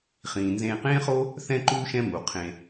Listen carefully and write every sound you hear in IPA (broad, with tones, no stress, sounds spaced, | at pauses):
χ ĩː˩ n z ẽː˨ q ẽː˥ χ o˥ | θ ɛ̃˥ ǃ uː˥ ʃ ɛ̃˦ m u˩ qʰ ẽ˨